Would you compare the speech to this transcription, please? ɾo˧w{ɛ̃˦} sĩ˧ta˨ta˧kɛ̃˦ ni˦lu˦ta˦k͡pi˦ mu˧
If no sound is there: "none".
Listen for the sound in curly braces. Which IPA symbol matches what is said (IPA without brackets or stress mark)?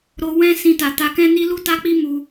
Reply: ɛ̃˦